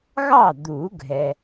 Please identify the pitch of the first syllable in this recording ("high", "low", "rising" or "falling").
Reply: falling